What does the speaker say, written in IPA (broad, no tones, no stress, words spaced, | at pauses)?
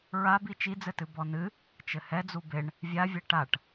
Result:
ɹabi t͡ʃid͡zɘtɨ bɔnɨ | t͡ʃɘhɛd͡zu beɳ | vʲavʲɛ ʈaʈ